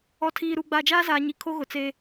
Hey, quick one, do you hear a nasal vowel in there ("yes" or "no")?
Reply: no